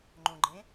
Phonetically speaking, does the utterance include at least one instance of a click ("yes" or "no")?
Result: yes